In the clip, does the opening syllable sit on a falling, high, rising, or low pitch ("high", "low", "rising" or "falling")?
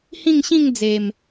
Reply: falling